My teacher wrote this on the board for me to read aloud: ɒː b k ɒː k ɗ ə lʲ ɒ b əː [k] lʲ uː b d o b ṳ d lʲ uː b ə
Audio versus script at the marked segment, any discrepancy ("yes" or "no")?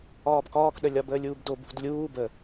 yes